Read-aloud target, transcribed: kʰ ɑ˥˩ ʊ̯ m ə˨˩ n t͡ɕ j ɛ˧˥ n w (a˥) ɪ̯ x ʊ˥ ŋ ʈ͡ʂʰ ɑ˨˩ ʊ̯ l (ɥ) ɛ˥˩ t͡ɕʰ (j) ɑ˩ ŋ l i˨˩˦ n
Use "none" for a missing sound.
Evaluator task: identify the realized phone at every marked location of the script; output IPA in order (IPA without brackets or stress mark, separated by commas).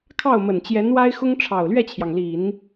a˥, ɥ, j